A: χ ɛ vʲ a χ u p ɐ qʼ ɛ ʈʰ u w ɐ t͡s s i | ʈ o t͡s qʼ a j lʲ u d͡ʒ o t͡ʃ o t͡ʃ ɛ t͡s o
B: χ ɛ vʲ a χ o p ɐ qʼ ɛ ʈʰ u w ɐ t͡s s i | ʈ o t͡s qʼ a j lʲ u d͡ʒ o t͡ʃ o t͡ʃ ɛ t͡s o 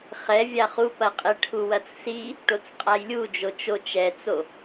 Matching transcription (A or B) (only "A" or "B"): A